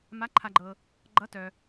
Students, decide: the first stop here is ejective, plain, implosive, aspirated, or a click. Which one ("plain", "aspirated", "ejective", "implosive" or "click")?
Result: click